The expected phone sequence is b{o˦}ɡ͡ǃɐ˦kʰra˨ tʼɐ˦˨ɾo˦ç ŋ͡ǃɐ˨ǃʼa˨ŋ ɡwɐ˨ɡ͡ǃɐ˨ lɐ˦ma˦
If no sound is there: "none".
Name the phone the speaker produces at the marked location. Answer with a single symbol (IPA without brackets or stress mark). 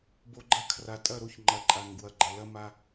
o˨